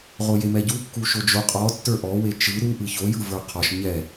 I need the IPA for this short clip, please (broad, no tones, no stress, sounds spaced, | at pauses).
ʁ o j e m ɛ ɟ u kː u ʃ o d͡ʒ o qʼ ɔ tː ə˞ ʔ ɔ w e t͡ʃ ɯ ɾ u ʔ ɯ ç o j ɯ v ə˞ qʰ ɔ ʃ ɲ ɛ